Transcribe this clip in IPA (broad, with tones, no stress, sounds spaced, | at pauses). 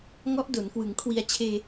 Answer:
ŋ ɔ˦˥ ʔ d o˩˦ n k w ɯ˩˦ ŋ kʰ w i˧ a̯ t͡ɕʰ eː˧